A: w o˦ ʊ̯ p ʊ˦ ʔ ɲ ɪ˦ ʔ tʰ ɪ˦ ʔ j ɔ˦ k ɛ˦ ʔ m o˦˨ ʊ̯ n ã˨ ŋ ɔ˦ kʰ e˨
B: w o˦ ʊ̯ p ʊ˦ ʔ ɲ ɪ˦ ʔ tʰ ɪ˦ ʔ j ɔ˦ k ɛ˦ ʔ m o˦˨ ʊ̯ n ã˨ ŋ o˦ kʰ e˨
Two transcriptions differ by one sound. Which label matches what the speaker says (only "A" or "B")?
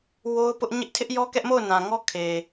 A